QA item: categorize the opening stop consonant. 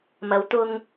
plain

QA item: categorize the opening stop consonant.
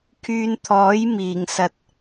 aspirated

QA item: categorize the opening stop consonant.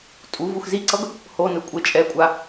ejective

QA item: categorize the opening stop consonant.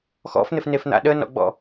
implosive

